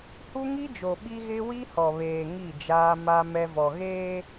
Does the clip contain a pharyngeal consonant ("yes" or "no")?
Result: no